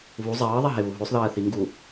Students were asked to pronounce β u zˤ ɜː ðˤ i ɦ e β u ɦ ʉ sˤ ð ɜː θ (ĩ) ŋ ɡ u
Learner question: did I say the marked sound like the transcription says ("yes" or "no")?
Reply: no